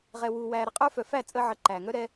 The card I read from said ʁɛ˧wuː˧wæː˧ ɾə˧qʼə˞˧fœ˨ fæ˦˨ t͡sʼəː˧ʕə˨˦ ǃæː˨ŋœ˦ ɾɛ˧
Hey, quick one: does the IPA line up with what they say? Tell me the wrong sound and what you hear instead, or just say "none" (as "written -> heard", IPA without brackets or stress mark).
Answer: none